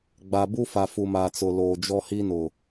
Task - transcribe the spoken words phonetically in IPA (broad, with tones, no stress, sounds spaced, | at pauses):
ɡ͡b a˨ b u˦ f a˨ f u˨ m aː˨ t͡s ʊ˨ l oː˨ d͡ʒ ɔ˦ h i˦ n ʊ˨